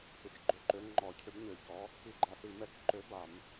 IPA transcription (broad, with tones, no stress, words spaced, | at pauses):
θi˨t͡ʃɡ͡ǃʏ˧˥˧ǃø˨˥ ŋ͡ǃɔ˨˩˦cʰʏ˨˥bɲø˨˩˦çɔ˨˥ | i˧˥˧ɡ͡ǃa˨˩˦θi˨˩˦ mɛ˧˥˧k ǃø˨˥ba˨˩˦m